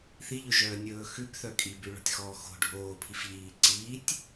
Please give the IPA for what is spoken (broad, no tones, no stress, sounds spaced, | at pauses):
θ i ʎ ɵ ʒ œː nʲ ɵː x ʉ b θ œ kʼ i b ʉ ɭ ɔ̤ tʲ x ɔː x o̤ ɖʱ oː pʰ i f ʎ iː ǀ iː tʲ